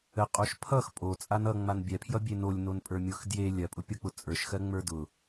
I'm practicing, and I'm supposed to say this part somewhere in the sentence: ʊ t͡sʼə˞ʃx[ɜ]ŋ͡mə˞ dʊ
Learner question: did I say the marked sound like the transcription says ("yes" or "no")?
yes